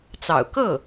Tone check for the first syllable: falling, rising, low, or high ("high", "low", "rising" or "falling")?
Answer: low